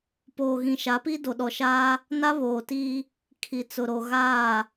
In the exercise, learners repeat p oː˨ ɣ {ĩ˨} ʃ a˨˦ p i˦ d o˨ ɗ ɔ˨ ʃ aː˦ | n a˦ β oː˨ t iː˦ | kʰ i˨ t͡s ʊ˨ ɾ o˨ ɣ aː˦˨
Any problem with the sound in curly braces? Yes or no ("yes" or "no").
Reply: no